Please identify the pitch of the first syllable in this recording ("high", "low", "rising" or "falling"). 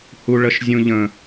high